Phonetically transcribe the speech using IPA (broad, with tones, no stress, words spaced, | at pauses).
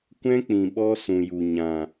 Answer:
kʷɛ̃˦k͡pĩ˨ ɓɔ˦ sũ˨ju˨ ɲã˨